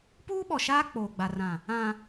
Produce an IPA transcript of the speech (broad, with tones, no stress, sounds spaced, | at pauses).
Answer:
p uː˦ ɓ ɔ˨ ʃ aː˦ k͡p oː˨ ɡ͡b a˨ r ã˨ | ã˨